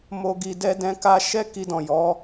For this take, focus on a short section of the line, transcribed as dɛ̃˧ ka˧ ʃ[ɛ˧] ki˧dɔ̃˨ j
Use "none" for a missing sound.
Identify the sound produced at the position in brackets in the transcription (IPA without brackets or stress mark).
ɛ˧